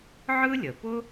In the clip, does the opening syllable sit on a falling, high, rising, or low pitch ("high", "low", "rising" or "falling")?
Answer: high